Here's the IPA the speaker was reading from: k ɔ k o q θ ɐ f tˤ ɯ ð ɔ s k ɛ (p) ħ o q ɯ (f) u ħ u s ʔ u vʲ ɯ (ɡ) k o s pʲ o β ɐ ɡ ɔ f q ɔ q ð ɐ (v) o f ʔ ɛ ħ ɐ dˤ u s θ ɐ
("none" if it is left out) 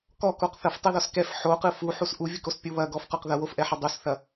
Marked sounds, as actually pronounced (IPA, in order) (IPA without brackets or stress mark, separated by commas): f, f, none, w